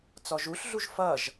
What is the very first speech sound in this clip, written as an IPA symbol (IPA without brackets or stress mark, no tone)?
t͡s